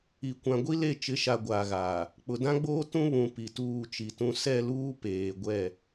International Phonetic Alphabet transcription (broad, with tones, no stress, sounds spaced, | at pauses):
i˨ kʷ ã˨ ɡʷ i˦ l e˦˨ t͡ʃ ɪ˨˦ ʃ a˨ ɡʷ aː˨ ɣ aː˨ | k͡p ʊ˨ d ã˦ ɡ͡b oː˦ t ũ˦ β ũ˨ p i˨ t uː˦˨ t͡ʃ i˨ t ũ˦ s ɛ˦˨ l uː˦ p eː˨ ɡʷ ɛ˦˨